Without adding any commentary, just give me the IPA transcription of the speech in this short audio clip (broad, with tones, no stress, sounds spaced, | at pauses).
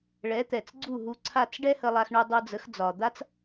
ɭ ɛ˩˥ t̪ ɛ˩ t͡s ɡ͡ǀ u˥˩ ɦ u˧ ǀʰ a˥˩ t͡s ɖ ɛ˥ h ə˧ lˠ a˧ x ɳ u˧ dˤ u˧ d͡z ə˩˥ x d͡z ɒ˩ d̪ a˥ t͡s